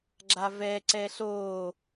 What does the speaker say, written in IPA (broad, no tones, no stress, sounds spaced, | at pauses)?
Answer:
ɡ͡ǁ a v ɛ ǀ ɛ ɬ oː